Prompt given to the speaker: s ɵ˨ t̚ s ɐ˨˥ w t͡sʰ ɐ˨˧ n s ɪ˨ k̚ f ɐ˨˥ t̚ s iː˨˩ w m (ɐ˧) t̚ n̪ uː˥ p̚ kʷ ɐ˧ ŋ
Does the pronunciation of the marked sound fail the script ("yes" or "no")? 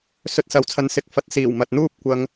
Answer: yes